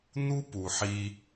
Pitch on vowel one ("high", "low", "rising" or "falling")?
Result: high